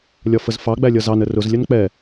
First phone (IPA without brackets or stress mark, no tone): lʲ